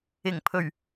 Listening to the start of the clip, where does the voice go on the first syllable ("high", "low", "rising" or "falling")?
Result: low